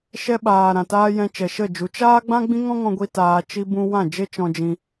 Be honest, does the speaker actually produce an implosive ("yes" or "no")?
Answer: yes